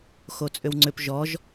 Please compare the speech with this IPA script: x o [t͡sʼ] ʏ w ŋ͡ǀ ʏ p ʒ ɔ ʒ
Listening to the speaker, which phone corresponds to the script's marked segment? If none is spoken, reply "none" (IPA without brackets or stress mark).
t͡sʼ